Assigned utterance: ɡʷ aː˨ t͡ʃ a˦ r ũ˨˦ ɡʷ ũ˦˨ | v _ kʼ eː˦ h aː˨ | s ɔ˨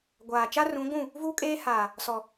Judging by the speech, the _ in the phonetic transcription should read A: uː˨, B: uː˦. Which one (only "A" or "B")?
B